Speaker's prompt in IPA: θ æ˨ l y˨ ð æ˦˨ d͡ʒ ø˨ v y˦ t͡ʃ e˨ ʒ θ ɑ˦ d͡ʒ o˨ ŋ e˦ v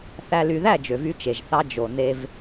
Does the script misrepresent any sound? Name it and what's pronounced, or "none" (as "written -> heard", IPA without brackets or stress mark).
ŋ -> n